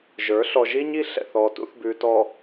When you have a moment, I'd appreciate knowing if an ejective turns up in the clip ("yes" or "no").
no